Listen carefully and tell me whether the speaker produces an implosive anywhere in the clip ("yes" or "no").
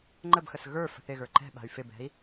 yes